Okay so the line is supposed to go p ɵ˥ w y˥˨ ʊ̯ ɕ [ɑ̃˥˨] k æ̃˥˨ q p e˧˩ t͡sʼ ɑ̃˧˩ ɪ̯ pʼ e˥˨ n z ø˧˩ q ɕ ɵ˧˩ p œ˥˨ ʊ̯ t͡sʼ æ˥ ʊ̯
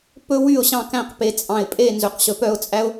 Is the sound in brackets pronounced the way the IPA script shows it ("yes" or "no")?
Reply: yes